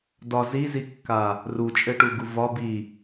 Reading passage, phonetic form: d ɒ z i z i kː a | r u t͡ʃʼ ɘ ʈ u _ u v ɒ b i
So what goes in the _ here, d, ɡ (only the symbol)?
ɡ